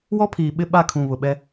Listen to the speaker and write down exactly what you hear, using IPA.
w ɔ˦ pʰ iː˨ ɓ ɪ˦ ɓ a˦˨ kʰ ũ˨ β ʊ˨ ɓ ɛ˦

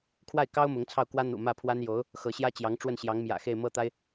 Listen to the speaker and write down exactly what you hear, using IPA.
kʰ w a˥˩ ɪ̯ k ɑ˥ ʊ̯ m ʊ˧˥ ŋ t͡sʰ ɑ˥˩ ʊ̯ k w ä˥ n̪ ṵ˨˩ m ä˥˩ pʰ w a˥ n j o˧˥ ʊ̯ | x ɤ˧˥ ɕ j ä˥ t͡ɕ j ɑ˧˥ ŋ ʈ͡ʂ w ə˥˩ n ɕ j ɑ˧˥ ŋ m j ä̰˨˩ x e˥˧ ɪ̯ m ɤ˥˩ t̪ a˥ ɪ̯

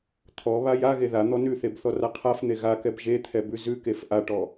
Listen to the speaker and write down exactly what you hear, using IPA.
t̪ʰ ɔ β a j a ɣ e ð a n̪ ɔ n ʉ θ e b θ ɔ r a qʰ a f n̪ e ɣ a k ɛ b ʒ e t̪ʰ ɛ b ʉ z ʉ k e f ʔ a ʈ ɔ

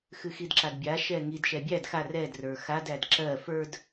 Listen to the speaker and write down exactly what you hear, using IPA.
x ɨ x i d ǁ a d bʲ a ʃ ɛ ŋ i d ʃ ɛ bʲ æ d x a r ɛ d r ə˞ x a d æ d ǁ ɜ f ə˞ d

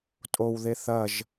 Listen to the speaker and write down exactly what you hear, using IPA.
tʼ o w ð e θ ɐ ʒ

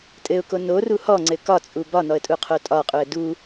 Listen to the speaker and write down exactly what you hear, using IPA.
tʼ ɘ ʊ̯ k o n o r u h ɔ ŋ͡ǀ ɘ k ɒ t͡sʼ u b ɒ n ɔ ə̯ tʼ u qʰ o tʼ ɒ qʼ u ə̯ d u

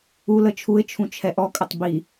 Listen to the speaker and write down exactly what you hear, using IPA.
u l ə t͡ʃʰ u ɪ̯ t͡ʃʰ ũ t͡ʃʰ ɛ ʔ ɔ kʼ ə tˤ b i

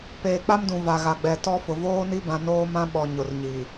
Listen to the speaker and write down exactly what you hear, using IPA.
p eː˨ k͡p a˦ m d ũ˨ v a˨ ɣ a˨ ɡ͡b ɛ˨ t ɔ˦ f ʊ˨ v oː˦ n i˦ b ã˨ n oː˦ m ã˦ ɓ ɔ˨ ɲ ʊ˨ r ɲ i˨

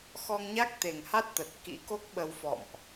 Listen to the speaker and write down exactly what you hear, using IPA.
x ɔ˧ ŋ ɲ a˦˥ k̚ t̪ e˨˩ ŋ h a˦˥ t̚ t̪ ə˨˩ t̚ k ḭ˧˥ k o˦˥ k̚ ɓ ə˧ w f ɔ̰˧˨ m ʔ

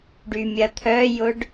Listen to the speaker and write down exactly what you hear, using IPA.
ɖ y mʲ ɐ t̪ʰ œ j ʊ ɖ

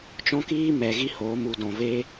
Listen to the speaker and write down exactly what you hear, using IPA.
t͡ʃ ɔ̃˦ k iː˦ m ɛ˨ ɣ i˦ h oː˨˦ m u˨ d ɔ̃˨ v eː˦

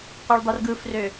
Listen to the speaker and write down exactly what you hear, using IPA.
qʷ ɯ ɭ dˤ i r ɡ ɯ f r ø

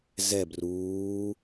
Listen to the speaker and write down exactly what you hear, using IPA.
z ɛ b r uː

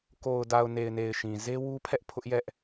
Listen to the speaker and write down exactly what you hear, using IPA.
k o˨ ʊ̯ d a˨ ʊ̯ n e˨ ɪ̯ n e˨ ɪ̯ ʃ ĩ˨ z e˦ w u˦ pʰ ɛ˦ ʔ pʰ ʊ˦ ʔ j ɛ˦ ʔ

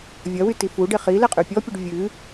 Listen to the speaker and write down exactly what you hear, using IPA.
vʲ ɐ w y t i f u ɖ e χ i l ɛ qʼ y pʲ ɔ pʲ ɨ ɖ vʲ ɨ

